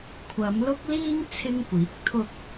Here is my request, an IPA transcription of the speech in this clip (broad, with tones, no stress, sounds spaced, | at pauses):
kʷʰ ɐ˨˧ m l ʊ˥ k̚ l iː˥ ŋ t͡sʰ ɪ˥ ŋ kʷ iː˨˥ k̚ t̪ʰ ʊ˥ k̚